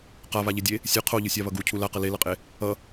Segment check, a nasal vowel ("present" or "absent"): absent